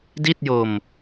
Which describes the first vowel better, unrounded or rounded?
unrounded